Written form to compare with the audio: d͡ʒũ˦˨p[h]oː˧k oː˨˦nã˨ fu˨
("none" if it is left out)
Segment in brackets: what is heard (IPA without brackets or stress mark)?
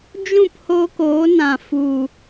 h